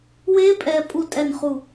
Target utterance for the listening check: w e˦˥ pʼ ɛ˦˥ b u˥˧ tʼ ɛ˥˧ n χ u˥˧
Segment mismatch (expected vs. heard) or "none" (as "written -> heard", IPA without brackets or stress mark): b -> pʼ